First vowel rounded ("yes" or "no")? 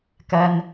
no